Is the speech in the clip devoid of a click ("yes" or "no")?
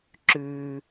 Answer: no